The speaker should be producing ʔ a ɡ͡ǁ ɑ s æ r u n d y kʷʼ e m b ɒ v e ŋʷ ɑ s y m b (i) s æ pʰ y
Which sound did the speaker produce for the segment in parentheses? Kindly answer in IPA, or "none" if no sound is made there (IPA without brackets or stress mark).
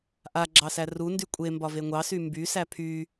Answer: y